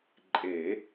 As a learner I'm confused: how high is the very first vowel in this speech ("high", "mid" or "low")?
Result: mid